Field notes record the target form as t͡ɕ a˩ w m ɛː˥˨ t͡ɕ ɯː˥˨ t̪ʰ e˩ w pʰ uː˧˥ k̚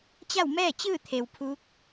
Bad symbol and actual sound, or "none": a˩ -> a˥˨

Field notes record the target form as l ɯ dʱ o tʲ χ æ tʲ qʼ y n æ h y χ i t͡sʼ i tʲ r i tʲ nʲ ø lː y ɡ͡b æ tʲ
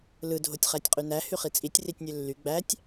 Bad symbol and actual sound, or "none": none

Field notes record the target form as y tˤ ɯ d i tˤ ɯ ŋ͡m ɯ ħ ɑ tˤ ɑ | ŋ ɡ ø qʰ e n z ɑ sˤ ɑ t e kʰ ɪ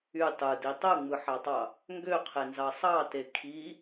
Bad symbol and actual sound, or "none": ɪ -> i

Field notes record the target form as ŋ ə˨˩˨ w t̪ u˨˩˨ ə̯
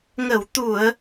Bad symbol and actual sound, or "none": none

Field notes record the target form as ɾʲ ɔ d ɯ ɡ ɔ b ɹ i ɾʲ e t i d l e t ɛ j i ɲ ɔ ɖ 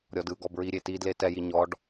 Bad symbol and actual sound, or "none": none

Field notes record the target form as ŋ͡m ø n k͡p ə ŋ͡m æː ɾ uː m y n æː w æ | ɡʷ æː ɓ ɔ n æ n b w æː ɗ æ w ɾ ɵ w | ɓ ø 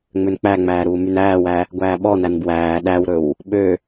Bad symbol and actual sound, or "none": ə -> æ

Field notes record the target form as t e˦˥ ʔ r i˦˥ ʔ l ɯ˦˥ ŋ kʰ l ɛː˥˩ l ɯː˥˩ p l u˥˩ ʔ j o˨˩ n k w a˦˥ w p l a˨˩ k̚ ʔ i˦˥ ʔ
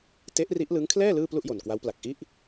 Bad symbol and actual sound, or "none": none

